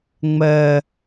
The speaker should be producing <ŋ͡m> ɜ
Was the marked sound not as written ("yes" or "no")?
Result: no